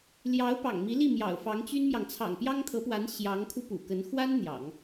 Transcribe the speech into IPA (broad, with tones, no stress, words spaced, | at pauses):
ljɑ˧˥ʊ̯ pɑ̰˨˩ŋmi˧˥li˥˩ mjɑ̰˨˩ʊ̯fɑ˧˥ŋt͡ɕy˥nmjɑ˨ŋ t͡sʰɑ̰˨˩ŋpjɑ˥ŋt̪ʰɤ˧˥pwa˧˥n ɕjɑ˧˥ŋkʰu˧ pṵ˨˩kə˧˥n xwa˥n n̪jɑ̰˨˩˦ŋ